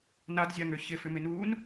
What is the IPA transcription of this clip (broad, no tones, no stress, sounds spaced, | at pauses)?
n a d zʲ a ŋ ø ç ɪ f ʏ m ɪ n uː n